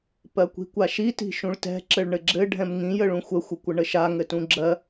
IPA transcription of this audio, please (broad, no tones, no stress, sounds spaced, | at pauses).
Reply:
p ɜ kʷ i̤ kʷ a ʃ i t i̤ ʃ ũ ɭ t ɛ̤ ǁ ɘ ɭ ɳ ɘ ɡ͡ǁ ɘ ɖʱ ɛ̃ m ŋ ĩ j ə ɭ ũ xʷ ə xʷ ə kʷ ə ɳ ə ʃ a ŋ ɘ t ũ ɡ͡ǁ ɜ